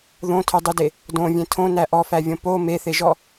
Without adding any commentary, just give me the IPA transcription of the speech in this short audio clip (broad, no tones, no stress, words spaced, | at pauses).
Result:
ðõtʰødˤyde | dõvʲẽ tʰõnæ ʔɔfævʲõ po meθeʒɔ